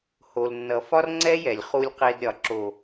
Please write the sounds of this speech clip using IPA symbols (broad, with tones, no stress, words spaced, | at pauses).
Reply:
ho˨lnːʌ˨ fɒ˦rŋ͡ǀɛ˦jɛ˨lʲ χu˧lʲqe˧d ɾʲɒ˨ ǁo˨